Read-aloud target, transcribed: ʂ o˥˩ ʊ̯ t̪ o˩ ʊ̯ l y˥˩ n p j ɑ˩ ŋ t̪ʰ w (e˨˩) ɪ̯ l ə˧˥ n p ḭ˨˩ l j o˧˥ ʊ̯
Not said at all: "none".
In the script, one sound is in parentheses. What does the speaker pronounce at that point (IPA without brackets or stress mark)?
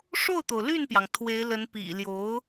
e˧˥